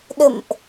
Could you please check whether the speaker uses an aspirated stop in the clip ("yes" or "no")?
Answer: no